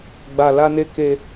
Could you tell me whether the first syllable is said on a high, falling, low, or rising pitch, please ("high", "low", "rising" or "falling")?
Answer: low